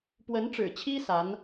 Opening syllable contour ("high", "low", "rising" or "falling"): rising